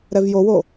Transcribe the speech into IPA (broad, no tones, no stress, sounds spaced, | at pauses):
ɾ ɛ v j o w o